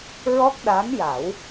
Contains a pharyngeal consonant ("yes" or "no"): no